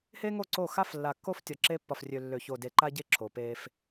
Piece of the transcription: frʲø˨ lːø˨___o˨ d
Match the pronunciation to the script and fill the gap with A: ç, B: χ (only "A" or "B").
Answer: A